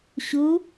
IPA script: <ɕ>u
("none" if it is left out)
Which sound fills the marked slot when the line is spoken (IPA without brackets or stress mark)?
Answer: ɕ